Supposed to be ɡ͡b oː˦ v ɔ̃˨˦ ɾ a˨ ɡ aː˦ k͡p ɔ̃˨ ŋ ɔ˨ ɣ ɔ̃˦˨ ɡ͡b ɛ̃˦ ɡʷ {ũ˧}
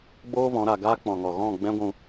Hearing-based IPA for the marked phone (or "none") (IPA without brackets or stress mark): ũ˧